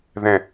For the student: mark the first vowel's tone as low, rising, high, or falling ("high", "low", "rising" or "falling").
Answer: falling